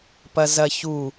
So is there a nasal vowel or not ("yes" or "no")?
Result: no